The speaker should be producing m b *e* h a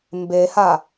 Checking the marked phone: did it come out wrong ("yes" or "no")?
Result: no